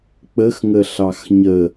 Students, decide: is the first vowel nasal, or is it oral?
oral